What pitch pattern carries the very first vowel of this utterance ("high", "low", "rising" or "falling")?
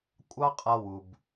high